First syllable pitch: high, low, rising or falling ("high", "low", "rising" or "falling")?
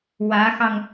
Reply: rising